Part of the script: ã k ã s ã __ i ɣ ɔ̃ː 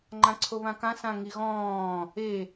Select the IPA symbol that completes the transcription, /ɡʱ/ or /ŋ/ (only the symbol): ŋ